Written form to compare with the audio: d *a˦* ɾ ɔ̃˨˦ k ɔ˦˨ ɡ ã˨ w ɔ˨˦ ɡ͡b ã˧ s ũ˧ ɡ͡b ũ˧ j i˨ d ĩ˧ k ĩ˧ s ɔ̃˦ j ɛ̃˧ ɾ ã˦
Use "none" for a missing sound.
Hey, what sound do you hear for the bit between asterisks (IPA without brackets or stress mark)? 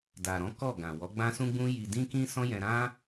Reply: a˨